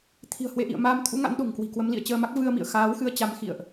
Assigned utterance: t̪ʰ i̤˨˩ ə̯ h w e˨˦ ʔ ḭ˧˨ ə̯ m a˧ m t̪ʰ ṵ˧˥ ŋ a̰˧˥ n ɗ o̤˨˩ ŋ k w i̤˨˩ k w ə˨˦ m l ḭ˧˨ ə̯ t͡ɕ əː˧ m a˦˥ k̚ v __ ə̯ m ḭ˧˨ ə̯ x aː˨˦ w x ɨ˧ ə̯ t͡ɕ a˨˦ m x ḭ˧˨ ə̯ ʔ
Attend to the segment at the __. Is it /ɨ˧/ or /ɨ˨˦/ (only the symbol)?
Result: ɨ˧